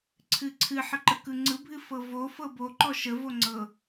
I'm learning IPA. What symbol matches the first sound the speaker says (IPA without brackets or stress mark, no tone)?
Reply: ǀʰ